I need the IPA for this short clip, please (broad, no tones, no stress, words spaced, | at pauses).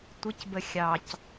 tʷɪcbə xʲɑc